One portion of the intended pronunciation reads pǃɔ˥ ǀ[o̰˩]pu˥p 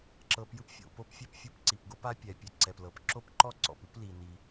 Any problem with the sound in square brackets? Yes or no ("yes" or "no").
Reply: yes